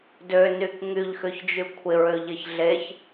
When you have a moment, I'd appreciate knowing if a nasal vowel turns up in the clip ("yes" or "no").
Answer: no